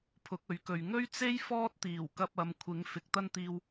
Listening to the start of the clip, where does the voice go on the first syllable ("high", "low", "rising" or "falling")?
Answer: rising